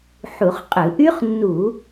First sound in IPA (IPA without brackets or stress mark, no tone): ħ